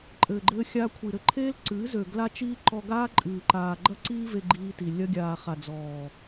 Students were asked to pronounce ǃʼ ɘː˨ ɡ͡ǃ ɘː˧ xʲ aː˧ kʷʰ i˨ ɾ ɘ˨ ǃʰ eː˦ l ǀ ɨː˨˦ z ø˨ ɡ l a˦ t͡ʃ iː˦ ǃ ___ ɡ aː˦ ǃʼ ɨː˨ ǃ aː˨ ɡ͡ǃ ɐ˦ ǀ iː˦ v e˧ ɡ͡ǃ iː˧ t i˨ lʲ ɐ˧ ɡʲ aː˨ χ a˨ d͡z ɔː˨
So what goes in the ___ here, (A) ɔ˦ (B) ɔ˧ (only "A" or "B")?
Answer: B